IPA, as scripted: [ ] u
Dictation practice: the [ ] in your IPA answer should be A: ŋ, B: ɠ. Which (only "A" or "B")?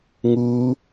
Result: A